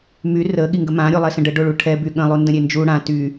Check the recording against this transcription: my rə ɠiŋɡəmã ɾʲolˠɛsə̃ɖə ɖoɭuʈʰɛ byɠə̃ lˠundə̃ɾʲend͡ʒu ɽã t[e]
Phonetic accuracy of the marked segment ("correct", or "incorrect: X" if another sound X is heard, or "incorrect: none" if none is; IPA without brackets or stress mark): incorrect: y